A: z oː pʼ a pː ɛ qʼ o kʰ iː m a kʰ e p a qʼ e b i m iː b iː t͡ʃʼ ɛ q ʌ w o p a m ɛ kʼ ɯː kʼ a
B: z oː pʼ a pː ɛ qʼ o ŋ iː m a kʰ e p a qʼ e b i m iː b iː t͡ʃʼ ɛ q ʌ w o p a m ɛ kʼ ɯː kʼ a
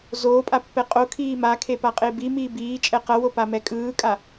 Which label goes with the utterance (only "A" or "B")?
A